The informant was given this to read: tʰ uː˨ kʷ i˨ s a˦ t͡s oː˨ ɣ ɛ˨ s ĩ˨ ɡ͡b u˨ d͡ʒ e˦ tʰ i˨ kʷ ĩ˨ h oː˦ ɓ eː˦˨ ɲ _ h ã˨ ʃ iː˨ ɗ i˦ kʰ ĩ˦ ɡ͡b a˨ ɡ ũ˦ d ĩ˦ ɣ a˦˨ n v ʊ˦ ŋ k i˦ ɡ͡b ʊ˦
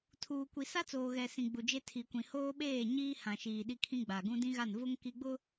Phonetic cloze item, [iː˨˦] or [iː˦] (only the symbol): iː˦